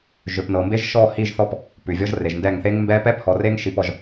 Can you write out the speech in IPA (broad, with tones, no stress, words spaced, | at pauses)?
ʒø˨pnɤ˨mbe˦ʒ ʃɔ˦˨hi˦˨ʒθɔ˦p | pʉ˨vʲɔ˦ʒre˨ʒndɛ˦˨ŋ θe˦ŋmbɛ˦ pɛ˦phɔ˨re˦ŋ ʃi˦pɔ˦ʒ